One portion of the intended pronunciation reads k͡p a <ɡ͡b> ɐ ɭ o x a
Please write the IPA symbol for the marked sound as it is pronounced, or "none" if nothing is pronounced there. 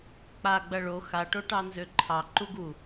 ɡ͡b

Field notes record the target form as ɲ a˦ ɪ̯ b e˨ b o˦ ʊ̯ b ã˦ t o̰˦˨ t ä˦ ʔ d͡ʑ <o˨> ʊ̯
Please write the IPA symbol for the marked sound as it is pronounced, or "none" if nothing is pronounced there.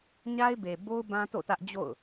o̰˦˨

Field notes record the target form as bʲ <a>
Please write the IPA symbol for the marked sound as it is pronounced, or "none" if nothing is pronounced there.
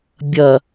ɐ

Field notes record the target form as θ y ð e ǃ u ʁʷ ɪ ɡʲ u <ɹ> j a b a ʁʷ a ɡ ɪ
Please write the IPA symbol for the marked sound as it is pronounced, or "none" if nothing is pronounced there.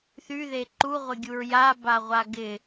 ɹ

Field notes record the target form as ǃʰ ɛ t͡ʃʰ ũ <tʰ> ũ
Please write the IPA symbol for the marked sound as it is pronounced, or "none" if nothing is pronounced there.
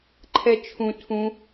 tʰ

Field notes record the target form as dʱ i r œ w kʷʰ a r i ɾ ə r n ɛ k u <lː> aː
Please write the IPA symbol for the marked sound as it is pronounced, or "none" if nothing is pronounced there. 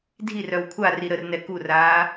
r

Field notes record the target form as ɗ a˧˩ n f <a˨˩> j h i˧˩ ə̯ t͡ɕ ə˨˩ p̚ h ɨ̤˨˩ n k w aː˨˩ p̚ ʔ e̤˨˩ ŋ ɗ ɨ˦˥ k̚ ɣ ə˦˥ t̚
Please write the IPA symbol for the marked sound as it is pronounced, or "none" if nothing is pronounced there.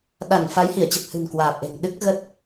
a˨˦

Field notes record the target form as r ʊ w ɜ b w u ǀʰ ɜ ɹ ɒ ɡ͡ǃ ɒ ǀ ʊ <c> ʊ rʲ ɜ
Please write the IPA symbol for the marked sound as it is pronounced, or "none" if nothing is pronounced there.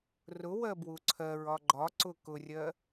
k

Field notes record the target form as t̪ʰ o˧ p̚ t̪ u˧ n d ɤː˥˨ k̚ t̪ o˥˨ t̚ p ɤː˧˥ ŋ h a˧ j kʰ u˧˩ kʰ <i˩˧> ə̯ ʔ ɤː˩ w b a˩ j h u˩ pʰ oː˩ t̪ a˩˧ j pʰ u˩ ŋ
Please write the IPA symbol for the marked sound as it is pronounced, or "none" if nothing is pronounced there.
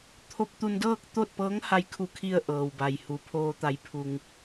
i˧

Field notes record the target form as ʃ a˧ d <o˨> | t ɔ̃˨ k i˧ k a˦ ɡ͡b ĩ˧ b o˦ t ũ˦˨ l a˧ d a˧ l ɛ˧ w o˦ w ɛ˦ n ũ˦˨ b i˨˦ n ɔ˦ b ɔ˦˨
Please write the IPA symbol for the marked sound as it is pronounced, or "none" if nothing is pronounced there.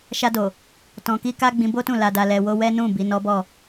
o˨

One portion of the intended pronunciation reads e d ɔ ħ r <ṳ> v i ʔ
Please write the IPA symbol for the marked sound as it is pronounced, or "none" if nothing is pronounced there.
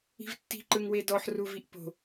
u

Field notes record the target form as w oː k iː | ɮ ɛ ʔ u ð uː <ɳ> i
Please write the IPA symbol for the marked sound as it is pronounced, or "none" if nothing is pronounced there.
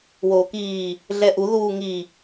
ŋ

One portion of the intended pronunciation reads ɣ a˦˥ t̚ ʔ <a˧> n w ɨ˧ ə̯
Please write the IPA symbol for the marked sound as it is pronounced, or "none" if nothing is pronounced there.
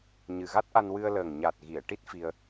a˧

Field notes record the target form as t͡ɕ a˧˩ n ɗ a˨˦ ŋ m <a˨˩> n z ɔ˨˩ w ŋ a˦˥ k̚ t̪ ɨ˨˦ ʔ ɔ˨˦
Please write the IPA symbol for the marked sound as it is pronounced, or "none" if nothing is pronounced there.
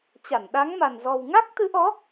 a˨˩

